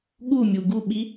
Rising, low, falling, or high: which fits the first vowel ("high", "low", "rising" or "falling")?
falling